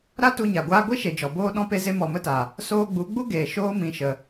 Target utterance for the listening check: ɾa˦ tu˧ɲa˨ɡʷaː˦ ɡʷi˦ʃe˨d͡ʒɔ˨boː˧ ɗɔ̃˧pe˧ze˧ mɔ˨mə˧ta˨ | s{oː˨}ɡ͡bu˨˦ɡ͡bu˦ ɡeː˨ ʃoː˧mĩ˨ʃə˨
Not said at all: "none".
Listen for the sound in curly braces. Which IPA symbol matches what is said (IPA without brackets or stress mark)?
oː˧